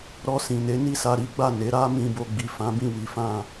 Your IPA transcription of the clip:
ɾɔ˧sĩ˨ne˨˦ ni˦˨sa˧ɾi˦ ɡ͡ba˦˨ne˨˦ ɾa˦ mĩ˧bo˧ɡ͡bi˨ fã˨˦bĩ˦˨ wi˨˦fã˦˨

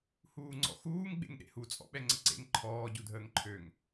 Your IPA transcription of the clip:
huːŋ͡ǀɔ̰xuːŋ ɡ͡bḛŋɗḛhu t͡sʼɔ̰ɓɛŋ͡ǀəǀḛŋ ǃʰɔː ɟudʱəːŋǃʰøŋ

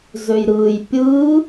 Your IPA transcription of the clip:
zøjɾɯːj pʲɯ

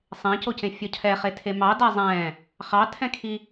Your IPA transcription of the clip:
sˤẽcocẽfʲɔ cʰɛχetʰe mɑdæ zˤɛ̃ | χɑtʰɛ̃kʰi

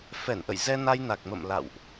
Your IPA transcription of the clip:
fɛ˧˩nʔə̰˧˨j zɛ˧na˧jna˨˩k̚ mə̰˧˨mla̰˧˨wʔ

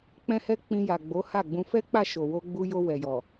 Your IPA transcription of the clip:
k͡pɛ̃˦hɛ˦ k͡pĩ˧ja˨ɡ͡bo˨˦ ha˦˨ɡ͡bũ˧ fɛ˦k͡pa˦˨ ʃo˨wo˧ɡ͡bu˧jo˧ wɛ˨jɔ˨

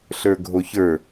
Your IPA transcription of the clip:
ɬə˞ɡʱoçə˞

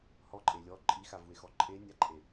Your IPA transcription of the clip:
hɔǃʼe lʲɔ ǃʼixavue̯xɔ ǃʼenʲaǃʼe

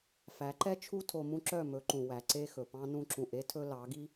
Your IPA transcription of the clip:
fæ˨˦ǃɛ˦t͡ʃʰu˦ tʰo˧mũ˦ǁœ˦˨ mɵ˨˦ǃũ˨ wæ˨ ǀe˦xɵ˨pɑ̃˦ nũ˧ǁũ˨ʔe˦tʰɵ˧ lɑ˨˦ɡi˦

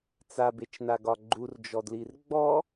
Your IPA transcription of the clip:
t͡sabet͡ʃnaɡɒ ɡ͡ǃurd͡ʒɔdlir ɡ͡bɔ

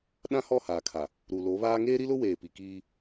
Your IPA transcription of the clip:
ɗã˦hɔ˦˨haː˨kʰa˨ | ɾu˨lo˨˦βaː˦ ŋeː˦ɾi˦lʊ˦ weː˨pi˨kiː˦

